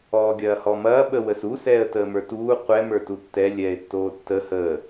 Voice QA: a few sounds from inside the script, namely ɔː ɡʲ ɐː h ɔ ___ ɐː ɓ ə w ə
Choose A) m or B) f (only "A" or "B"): A